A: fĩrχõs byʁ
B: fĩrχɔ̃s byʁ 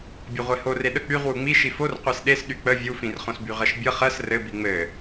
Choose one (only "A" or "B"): A